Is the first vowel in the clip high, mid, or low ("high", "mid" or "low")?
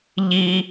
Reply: high